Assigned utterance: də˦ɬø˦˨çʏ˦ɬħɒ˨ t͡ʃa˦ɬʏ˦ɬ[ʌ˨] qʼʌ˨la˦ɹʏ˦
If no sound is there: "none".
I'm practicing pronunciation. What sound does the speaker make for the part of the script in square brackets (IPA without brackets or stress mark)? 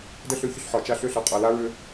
ʌ˨